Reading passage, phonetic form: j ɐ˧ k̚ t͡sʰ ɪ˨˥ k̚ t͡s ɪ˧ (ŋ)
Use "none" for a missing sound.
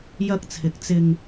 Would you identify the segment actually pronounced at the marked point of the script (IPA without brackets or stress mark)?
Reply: ŋ